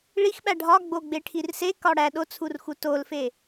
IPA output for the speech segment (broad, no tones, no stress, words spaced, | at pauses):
ɭixɓæ ɖʱɒɡ͡bo ɡ͡beʈʰirsekɒ ɽæ ɗot͡sʰur xutolfe